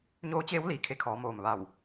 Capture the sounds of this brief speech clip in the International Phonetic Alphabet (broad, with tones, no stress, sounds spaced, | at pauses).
ɲ oː˧˥ t͡ɕ eː˧˥ w l iː˩ kʰ e˧ kʰ ɔː˩˧ m oː˩ m ʋ a˧˩ w